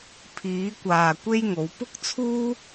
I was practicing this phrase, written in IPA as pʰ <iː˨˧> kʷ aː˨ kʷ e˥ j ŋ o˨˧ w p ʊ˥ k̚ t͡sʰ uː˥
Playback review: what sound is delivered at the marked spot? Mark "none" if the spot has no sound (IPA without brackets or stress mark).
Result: iː˨˧